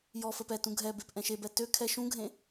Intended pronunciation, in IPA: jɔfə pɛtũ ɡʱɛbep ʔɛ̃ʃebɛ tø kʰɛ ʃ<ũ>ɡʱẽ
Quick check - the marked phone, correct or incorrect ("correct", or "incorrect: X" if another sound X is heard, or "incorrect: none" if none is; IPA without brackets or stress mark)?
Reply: correct